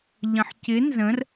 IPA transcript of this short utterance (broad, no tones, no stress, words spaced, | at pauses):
ʎə̃ħcɪ nzə̃r